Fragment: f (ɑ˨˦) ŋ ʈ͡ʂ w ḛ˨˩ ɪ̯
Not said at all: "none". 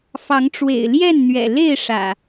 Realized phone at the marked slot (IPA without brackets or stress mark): ɑ˨˦